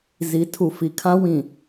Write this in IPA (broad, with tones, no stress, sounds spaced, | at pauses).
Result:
z i˨˦ tʰ u˨ f i˨ kʰ ã˦ w ĩ˨